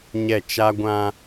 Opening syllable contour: falling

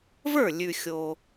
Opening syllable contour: falling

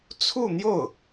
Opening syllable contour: falling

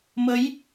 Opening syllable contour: rising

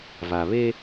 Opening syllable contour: low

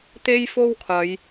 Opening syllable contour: high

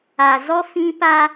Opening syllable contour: low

